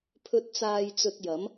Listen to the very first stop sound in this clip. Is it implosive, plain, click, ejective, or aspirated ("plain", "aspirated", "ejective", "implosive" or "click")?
aspirated